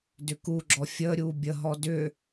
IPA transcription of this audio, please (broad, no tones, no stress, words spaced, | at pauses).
dʏkuɡ͡ǁɔ fʲəːɾʲuː bʲəɦɔ dʏː